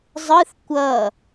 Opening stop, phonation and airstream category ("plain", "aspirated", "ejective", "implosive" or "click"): plain